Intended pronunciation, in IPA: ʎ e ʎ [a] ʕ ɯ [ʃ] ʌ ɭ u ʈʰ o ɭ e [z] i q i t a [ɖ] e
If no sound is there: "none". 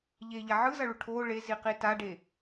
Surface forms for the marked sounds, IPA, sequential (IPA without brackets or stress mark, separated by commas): a, z, z, ɖ